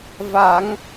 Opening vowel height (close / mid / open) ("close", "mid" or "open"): open